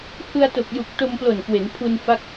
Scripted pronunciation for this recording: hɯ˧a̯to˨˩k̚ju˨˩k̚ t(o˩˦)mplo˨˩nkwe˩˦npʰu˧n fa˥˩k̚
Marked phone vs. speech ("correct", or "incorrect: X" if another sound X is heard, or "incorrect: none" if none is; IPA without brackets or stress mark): incorrect: o˧